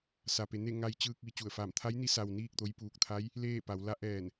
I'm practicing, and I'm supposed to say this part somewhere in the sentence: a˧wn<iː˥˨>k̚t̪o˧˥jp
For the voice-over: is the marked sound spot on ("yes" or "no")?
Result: yes